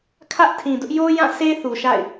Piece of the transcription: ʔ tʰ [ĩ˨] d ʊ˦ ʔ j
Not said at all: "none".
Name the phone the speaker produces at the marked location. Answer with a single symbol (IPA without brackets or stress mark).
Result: ĩ˨